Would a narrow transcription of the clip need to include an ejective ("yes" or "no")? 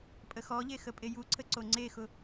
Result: yes